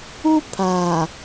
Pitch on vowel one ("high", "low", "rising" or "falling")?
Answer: high